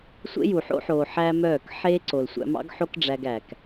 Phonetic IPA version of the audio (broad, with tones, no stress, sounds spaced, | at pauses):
sʷ ḛ˦ j u˨ ħ o̰˦ ħ oː˨ ħ æ˦ m œː˦˨ k ħ eː˦ ǀ o˨ l sʷ æ̰˧ m ɑ̰˦ ɡ ħ o˦ k ɖ͡ʐ æ˧ ɡ æː˨ k